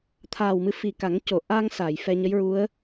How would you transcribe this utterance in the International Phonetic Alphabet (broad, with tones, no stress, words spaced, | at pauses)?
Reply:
t̪ʰaː˨˩wmɨ˧fi˨˩ka˨˩˦ŋ co˨˩˨ʔa˧ŋ sa˨˩˨j fɛ˧ɲə˧˥jɹu˧˥ə̯